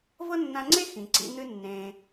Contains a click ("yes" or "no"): yes